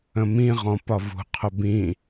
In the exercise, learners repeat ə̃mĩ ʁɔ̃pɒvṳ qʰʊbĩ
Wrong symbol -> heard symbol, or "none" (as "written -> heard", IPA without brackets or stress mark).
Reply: none